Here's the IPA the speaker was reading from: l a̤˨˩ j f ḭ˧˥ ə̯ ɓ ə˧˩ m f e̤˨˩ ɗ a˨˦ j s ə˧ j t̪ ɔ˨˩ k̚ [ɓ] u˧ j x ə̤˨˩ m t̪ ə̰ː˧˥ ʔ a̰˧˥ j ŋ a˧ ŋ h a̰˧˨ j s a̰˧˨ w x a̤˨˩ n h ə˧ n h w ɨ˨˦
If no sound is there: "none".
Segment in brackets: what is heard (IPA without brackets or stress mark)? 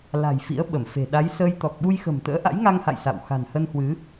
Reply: ɓ